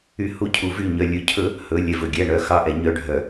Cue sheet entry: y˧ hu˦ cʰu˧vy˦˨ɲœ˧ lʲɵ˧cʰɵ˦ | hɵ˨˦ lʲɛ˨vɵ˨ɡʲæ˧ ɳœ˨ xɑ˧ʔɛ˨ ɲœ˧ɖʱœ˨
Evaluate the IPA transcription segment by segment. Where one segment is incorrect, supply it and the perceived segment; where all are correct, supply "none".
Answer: none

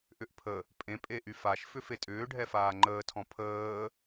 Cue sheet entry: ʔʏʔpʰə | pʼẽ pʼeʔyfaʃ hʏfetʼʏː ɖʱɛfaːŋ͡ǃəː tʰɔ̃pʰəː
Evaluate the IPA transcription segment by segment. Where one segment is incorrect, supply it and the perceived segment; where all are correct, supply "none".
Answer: h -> f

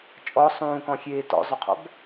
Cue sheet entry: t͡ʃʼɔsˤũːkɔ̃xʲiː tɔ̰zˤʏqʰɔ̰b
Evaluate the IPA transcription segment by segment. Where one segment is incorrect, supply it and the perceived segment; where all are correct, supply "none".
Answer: iː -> eː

